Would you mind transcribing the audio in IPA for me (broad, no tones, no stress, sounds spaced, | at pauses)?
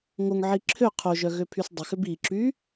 ŋ o ŋ ʕ i ǁʰ ø qʰ o ʒ œ ɣ ø pʰ y s dˤ ʏ x ʏ b i ǁ y